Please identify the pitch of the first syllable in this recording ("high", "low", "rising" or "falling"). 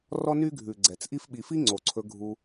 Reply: high